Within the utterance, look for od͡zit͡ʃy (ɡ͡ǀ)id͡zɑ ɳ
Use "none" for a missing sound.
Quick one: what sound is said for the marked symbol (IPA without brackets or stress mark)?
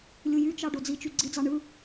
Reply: ɡ͡ǀ